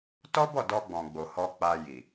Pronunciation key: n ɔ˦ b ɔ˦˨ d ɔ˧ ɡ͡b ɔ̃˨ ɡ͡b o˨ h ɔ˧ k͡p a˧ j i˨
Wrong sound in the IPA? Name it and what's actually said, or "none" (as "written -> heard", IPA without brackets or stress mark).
n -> t